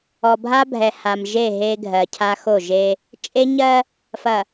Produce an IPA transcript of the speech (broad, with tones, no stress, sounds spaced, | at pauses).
ɔ˨ bʱ a˦ bʱ ɛ˨ h a˨ m ʒ e˦˨ ɦ e˦ ɡʱ ɜ˨ cʰ a˦ x o˦˨ ʒ e˦ | t͡ʃʼ e˦ ɲ ɜ˦ | f ɐ˨